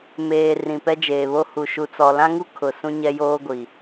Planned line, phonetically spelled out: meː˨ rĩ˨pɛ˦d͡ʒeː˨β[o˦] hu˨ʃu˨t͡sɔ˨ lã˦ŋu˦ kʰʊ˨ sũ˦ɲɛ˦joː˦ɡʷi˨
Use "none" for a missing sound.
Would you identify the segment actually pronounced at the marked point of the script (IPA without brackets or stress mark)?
o˦